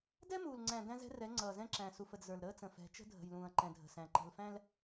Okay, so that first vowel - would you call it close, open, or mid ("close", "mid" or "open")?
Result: mid